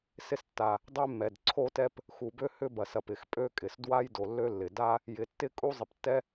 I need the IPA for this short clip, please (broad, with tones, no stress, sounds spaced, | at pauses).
s ɪ˥ s tː a˩ | dˤ e˥ mː ɛ˩ d ǀʰ o˥ t ɛ˥ p | x u˩ b ø˥ h ʏ˥ b ɐ˩ s ɐ˩ p ɪ˩ x pʼ ø˥ kʼ ɪ˩ s d w a˥ j d o˩ lː ø˥ lː ɪ˩ d a˥ | j ɪ˩ tː ɪ˥ kʼ u˥ zˤ ɪ˩ p tː ɛ˥